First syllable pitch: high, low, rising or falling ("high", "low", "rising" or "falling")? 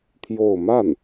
falling